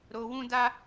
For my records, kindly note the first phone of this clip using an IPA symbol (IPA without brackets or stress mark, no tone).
ɾ